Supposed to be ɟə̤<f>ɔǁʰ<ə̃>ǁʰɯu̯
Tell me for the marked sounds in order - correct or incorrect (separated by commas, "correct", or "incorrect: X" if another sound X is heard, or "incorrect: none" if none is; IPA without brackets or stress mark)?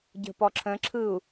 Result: incorrect: p, correct